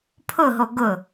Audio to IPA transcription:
pʰ ʊ ɦ o ɡ ʊ

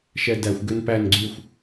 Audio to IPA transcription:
ʃ ɛ d æ xʷ ɡ ø n p æ n ɡ͡ǀ y xʷ

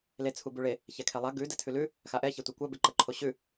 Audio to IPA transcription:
l e t͡sʰ u b ʉ ɭ e | ç ɛ kʰ ɛ lˠ a ɡ ʉ d ɛ tʰ ʉ l ʉ | x a ʔ ɛ ç e tʷ a kʷ a b e ǃ ə ǃʰ o ɕ ʉ

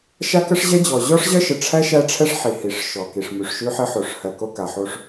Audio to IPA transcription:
ʃ a˦ k ə˦ ʂ ʑ ɛ˦ d͡ʑ ɔ˨ ʑ ɔ˦ ʂ ʑ ɜ˦ ʃ ə˨ ʈ͡ʂʰ æ˦ ʃ æ˦ ʈ͡ʂʰ ɛ˦ ʂ ħ i˨ h i˨ ʂ ʃ ɔ˨ k i˨ ʂ m ʉ˨ ʂ ʃ ʉ˦ ħ ɘ˦ ħ o˨ ʂ h ɜ˨ k o˦ k a˨ ħ o˦ ʂ

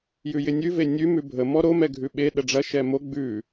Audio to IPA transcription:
j ʉ j ɪ nʲ ʉ v e nʲ ʉ m ʉ bʱ ə m ɔ ɾ o m ɛ ɡʱ ʉ ɓ e ɗ ə ɖ͡ʐ ɐ ʃ ɛ m o ɡ͡b ʉ

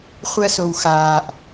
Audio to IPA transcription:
χʷ ɜ s o w x aː ʔ

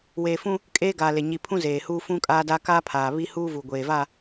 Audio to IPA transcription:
w eː˨ f ũ˦ | kʼ eː˦ ɡ aː˨ l e˨ ɲ i˨ pʰ ũ˦ z eː˨ h uː˦ f ũ˦ kʼ aː˦ d a˦ k aː˦ pʰ aː˨ β i˦ h uː˦ v uː˨ ɡʷ eː˨ v a˦˨

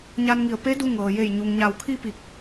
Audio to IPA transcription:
ɲ a˧ n ŋ i˧˩ ə̯ p e˧˥ d u˧ ŋ ɤː˩ j e˧˩ j ɲ u˩ ŋ ɲ a˧˩ w kʰ i˥˨ p i˧˩ k̚

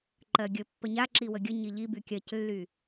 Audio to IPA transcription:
ǃ ɜ ɡʲ ə pː ə ɲ a ǁ i w ə ɡʲ ə ɲ i ʎ i b y kʲ ɜ c lː y

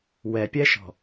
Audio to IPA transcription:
w ɛ pʲ ɛ ʃ ɔ̤

